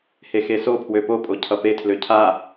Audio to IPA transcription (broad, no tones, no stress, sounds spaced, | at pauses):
h e x e s o pʰ w ø p o pʼ o cʰ ʌ p e tʰ l ø cʰ a